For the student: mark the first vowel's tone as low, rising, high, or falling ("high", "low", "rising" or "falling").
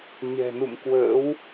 low